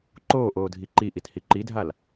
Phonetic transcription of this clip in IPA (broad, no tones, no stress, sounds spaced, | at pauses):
ǃ oː ʔ oː dʱ i ǃ i ʔ i t h i ǃ i dʱ a l